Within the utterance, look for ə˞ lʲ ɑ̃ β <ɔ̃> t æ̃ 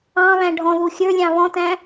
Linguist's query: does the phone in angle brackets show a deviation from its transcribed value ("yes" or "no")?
no